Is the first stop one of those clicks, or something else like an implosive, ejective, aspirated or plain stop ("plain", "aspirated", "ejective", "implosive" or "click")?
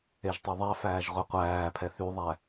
plain